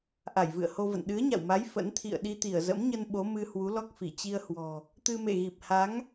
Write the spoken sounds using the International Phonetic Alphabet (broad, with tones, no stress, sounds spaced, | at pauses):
ʔ a˧˩ j v ɨ̰˧˨ ə̯ h o˧ v ə̰˧˨ n ɗ ɨ˨˦ ə̯ ɲ a̰˧˨ w m a˨˦ j f ə̰˧˥ n t̪ʰ ḭ˧˨ ə̯ ɗ i˧ t̪ i˧˩ ə̯ z ə̰˧˥ m ɲ ə˧ n ɓ o˨˦ m ɨ˧ h w u˨˦ l ɔ˦˥ k̚ f i˧˩ t͡ɕ i˧ ə̯ h w ɔ̤˨˩ | t̪ ɨ˧ m ḛ˧˨ ɣ i˨˩ p̚ h a˨˦ ŋ